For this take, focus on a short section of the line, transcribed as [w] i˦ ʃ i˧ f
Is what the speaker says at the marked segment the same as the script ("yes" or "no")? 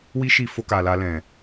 yes